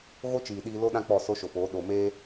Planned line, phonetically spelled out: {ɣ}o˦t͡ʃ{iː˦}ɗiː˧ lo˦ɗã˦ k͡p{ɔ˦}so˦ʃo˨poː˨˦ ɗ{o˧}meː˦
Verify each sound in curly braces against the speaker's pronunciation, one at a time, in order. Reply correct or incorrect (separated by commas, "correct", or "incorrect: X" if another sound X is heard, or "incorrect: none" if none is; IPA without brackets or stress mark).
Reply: correct, incorrect: iː˨, incorrect: ɔ˦˨, incorrect: o˨